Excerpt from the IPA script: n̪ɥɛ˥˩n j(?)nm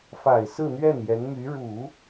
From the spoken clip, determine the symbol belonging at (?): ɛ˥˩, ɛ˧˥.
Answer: ɛ˧˥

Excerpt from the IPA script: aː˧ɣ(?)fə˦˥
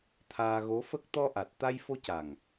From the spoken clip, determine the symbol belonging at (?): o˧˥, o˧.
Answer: o˧˥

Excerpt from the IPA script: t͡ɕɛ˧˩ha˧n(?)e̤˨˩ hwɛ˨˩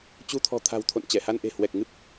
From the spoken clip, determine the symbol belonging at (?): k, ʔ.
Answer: ʔ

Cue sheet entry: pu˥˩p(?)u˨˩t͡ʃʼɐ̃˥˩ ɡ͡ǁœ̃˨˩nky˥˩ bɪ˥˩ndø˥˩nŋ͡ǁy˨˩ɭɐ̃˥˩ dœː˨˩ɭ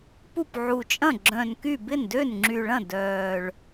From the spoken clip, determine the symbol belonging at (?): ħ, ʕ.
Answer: ʕ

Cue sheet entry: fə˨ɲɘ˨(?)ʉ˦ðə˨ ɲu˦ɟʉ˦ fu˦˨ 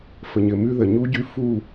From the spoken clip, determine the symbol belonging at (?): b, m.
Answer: m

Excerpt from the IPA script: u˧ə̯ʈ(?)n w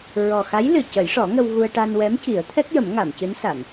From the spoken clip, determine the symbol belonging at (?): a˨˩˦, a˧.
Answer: a˧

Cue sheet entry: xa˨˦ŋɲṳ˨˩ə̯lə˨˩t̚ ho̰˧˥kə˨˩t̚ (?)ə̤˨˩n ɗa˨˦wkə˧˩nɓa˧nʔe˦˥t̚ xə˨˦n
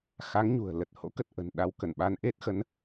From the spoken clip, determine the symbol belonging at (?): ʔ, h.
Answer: ʔ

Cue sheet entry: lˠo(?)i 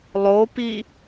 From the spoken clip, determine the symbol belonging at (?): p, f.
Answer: p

